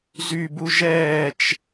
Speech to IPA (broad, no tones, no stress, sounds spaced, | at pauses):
z y b u ʒ ɛː t͡ʃ